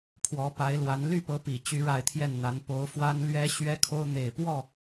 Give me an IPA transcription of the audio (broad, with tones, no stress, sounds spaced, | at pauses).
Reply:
pʰ w ɔ˧˥ p a˧˥ ɪ̯ l w a˧˥ n l y˥˩ p ɤ˧˥ p i˨˩ t͡ɕ y˥ ɻ a˥˧ ɪ̯ t̪ʰ j ɛ˥˩ n n̪ a˧˥ n p o˧˥ ʊ̯ f w a˥ n l ɥ ɛ˥ ɕ ɥ ɛ˥ kʰ o˥ ʊ̯ n̪ e˨˩ ɪ̯ p w ɔ˥˩